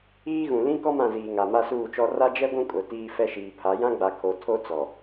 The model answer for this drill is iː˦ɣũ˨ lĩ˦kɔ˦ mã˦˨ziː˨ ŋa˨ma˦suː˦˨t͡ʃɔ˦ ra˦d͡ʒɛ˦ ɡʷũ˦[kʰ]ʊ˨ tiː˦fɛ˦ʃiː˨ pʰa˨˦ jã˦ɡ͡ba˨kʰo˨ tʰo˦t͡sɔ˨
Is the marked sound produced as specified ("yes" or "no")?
no